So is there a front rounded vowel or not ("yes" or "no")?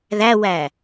no